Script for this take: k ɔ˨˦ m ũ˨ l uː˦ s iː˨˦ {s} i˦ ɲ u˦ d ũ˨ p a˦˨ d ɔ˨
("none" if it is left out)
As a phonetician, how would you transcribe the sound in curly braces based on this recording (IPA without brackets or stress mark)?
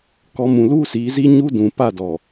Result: z